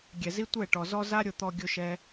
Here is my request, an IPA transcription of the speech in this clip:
ɡʲ ɛ˨ z i˦ tʷ ɛ˦˨ ʈ ɔ˨ z ɔ˦ z a˦ ɾʲ ʊ˧ t̪ ɔ˧ ɡʲ ʊ˦ ʃ ɛ˦

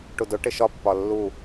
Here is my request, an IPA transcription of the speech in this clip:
ʈ u d ʊ ʈ ɪ ʃ ɒ pː ɒ lː u

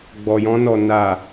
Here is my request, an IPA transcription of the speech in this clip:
ɡ͡b ɔ˨ j ɔ̃˧ n ɔ˨ n a˨

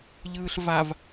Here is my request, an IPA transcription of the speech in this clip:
ʎ ɯː ɬ v a v

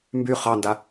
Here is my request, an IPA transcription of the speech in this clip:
m b y χ ɑ n d a

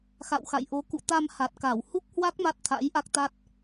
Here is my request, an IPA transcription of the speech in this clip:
x a̰˧˨ w x a̰˧˨ j ʔ o˨˦ k ṵ˧˨ t̪ a˧ m h a˨˩ t̚ k a˧˩ w h u˦˥ k̚ h w a˦˥ k̚ m a˦˥ t̚ t̪ʰ a̰˧˥ j ʔ a˦˥ k̚ t̪ a˦˥ t̚

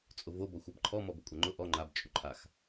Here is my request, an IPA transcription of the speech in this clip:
t͡sʼ ʊ v o b ɔ xʷ a b ǃʰ ɔ m ɔ b ʊ kʷʼ a ŋ͡ǃ ʊ ʔ ɔ ŋ͡ǃ a b t͡ʃʼ u ǃʰ a x

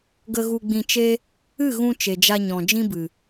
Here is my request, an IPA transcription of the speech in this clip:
ɡ ə˧ ɣ u˧ ɡ͡b ĩ˧ t͡ʃ e˦ | ɨ˦˨ ɣ ũ˧ t͡ʃ e˨ d͡ʒ a˧ ɲ ɔ̃˨ d͡ʒ ĩ˦ b ɨ˨

